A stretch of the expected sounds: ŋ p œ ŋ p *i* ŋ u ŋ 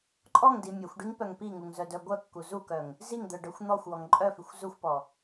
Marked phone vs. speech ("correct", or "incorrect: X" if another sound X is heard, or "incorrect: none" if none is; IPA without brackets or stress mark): correct